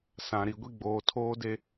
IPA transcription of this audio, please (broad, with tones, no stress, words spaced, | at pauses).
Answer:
sã˨ ɾi˨ɡʷi˦ ɡ͡boː˨tʰoː˦de˦